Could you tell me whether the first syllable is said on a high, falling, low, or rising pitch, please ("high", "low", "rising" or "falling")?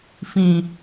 low